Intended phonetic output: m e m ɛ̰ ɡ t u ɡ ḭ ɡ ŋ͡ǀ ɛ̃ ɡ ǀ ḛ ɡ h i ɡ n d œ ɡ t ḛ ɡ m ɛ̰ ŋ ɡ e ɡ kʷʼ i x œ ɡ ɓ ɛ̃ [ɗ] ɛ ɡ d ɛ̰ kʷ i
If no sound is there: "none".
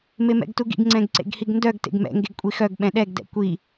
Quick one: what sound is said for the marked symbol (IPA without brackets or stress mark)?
ɗ